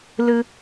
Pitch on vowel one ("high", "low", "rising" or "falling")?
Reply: high